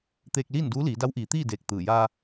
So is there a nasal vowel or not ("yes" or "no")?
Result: no